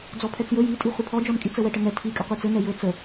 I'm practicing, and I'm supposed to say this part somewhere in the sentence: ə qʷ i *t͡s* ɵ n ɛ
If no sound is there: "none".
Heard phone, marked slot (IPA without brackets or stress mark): t͡s